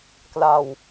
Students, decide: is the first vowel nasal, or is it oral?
oral